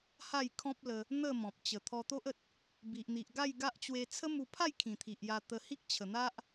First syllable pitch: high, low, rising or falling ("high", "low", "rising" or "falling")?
falling